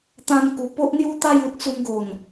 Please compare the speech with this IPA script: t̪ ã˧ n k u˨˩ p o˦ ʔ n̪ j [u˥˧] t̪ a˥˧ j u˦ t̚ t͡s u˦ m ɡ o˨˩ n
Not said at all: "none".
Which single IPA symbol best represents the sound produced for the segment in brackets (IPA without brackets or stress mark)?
u˥˧